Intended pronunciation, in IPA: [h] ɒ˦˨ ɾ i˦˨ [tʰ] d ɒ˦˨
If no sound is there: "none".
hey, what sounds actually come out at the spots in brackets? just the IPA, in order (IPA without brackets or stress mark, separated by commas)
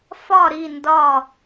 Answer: f, n